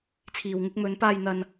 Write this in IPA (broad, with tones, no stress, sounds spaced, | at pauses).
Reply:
t͡sʰ iː˨ w ŋ ɪ˧ k̚ m ɵ˨˧ n p aː˧ j n̪ ɐ˧ n